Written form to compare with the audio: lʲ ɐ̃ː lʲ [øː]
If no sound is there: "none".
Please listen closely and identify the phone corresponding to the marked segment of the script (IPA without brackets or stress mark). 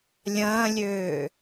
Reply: øː